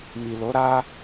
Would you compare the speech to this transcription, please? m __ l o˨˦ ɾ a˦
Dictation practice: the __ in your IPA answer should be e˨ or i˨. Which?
i˨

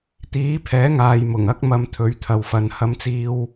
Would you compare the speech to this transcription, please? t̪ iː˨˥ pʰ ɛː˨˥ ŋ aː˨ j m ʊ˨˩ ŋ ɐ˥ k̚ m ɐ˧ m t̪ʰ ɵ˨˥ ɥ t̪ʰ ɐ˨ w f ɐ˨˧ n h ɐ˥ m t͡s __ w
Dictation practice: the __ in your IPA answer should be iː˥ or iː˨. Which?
iː˥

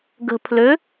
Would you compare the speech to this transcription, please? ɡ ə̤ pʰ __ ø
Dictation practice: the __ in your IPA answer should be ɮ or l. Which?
l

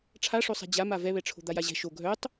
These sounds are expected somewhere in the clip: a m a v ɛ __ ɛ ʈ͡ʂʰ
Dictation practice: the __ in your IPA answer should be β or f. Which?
β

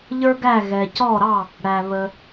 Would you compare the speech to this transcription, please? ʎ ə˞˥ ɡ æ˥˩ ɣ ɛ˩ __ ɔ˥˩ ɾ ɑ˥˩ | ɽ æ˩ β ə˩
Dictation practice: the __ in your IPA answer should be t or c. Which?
c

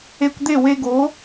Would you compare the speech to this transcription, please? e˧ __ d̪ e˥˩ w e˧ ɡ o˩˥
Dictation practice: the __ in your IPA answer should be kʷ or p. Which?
kʷ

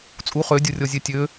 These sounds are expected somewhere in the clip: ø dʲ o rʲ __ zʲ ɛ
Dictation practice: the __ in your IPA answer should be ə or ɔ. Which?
ɔ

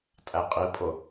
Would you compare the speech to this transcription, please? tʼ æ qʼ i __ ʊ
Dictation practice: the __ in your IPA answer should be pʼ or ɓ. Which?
pʼ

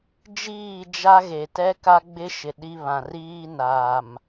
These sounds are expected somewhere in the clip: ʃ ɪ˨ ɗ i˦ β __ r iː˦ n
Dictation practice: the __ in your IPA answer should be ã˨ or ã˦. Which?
ã˨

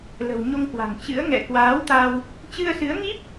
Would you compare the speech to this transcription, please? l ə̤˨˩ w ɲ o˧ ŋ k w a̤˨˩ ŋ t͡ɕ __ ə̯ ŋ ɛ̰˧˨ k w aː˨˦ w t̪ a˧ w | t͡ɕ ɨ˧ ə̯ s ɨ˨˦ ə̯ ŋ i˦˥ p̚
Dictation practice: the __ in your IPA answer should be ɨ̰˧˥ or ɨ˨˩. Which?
ɨ̰˧˥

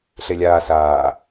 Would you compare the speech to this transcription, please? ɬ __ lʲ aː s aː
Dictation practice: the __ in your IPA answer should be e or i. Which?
e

